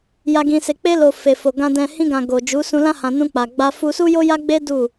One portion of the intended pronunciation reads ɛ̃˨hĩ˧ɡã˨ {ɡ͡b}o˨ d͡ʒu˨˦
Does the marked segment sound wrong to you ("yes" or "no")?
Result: yes